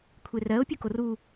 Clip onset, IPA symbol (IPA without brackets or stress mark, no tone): kʷʰ